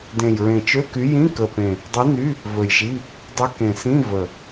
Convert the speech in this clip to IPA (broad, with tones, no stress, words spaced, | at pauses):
dẽ˨˩jɹẽ˨˩t͡ʃø˧˥˧ky˨˥ jĩ˧˥˧kə˨˩pẽ˨˩ | dˤi˨˥ny˧˥˧ | vɵ˨˩jʒi˧˥˧ | dˤy˨˥kẽ˨˩sĩ˧˥˧ və˨˩